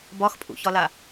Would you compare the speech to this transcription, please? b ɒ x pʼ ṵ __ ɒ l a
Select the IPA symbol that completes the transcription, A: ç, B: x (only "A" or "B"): A